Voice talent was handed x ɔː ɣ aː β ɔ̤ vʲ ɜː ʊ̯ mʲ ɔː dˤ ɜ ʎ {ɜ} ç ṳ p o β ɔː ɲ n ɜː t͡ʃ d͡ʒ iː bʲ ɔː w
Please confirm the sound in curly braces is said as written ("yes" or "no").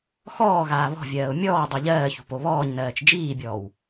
no